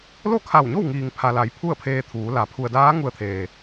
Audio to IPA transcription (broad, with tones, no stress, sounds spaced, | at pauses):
l o˥˨ kʰ a˧˩ w ɲ o˥˨ w ŋ iː˩ ŋ pʰ a˩ l a˩˧ j pʰ u˥˨ ə̯ pʰ eː˧ t̪ʰ uː˩˧ l a˩˧ pʰ u˩ ə̯ d aː˧˥ ŋ u˧ ə̯ t̪ʰ eː˩